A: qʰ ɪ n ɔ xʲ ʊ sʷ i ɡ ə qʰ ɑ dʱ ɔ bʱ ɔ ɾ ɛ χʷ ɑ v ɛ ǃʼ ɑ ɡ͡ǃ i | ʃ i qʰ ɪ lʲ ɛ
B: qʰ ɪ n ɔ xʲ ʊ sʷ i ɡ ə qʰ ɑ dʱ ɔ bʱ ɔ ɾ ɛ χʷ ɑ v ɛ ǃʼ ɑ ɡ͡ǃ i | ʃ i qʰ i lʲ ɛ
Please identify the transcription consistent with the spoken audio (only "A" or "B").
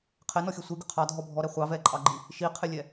A